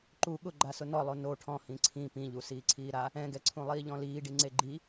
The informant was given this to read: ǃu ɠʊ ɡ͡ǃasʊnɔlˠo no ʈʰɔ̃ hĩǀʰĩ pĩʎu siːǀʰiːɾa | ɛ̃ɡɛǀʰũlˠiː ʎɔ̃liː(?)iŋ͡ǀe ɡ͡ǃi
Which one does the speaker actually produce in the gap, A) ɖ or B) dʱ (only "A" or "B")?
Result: A